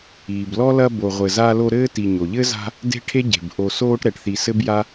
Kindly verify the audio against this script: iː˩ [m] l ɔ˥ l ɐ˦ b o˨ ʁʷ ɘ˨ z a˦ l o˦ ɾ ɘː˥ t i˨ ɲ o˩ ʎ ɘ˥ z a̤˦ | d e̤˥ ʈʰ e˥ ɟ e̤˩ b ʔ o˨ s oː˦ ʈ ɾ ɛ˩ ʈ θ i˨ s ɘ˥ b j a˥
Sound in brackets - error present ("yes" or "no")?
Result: yes